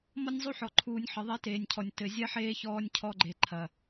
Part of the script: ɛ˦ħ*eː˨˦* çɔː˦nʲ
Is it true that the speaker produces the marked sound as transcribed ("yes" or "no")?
no